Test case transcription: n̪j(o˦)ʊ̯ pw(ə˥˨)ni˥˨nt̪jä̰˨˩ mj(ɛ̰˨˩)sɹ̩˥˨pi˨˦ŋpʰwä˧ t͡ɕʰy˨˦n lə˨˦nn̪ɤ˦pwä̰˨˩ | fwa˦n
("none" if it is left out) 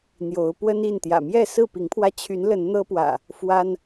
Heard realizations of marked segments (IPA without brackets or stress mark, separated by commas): o˨˦, ə˦, ɛ˥˨